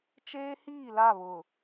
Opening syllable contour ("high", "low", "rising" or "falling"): high